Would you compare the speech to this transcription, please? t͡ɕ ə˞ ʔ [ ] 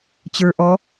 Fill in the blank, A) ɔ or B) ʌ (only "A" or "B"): A